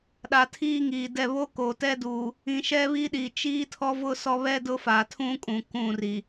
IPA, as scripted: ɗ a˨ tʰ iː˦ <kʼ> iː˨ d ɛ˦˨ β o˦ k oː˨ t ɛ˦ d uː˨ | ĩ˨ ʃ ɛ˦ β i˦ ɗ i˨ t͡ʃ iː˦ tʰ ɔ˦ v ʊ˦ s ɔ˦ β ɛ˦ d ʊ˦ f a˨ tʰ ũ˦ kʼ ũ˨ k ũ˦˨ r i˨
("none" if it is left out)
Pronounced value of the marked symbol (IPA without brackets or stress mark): ŋ